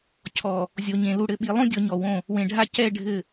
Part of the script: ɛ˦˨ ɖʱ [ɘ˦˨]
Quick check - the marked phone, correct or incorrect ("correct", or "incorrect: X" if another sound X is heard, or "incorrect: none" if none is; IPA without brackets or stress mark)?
correct